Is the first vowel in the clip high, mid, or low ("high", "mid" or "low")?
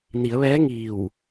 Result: high